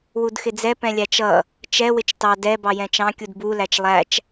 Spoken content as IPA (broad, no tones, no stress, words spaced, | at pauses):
wudxɪd͡zɛ pɛ̃lʲæt͡ʃʌ | t͡ʃɛ wɪt͡ʃtɑ dɛ bɑjɛ̃t͡ʃɑ̃ kʲudbu læt͡ʃlˠæt͡ʃ